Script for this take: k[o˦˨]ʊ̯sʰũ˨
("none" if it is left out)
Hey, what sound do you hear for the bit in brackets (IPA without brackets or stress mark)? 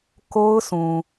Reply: o˦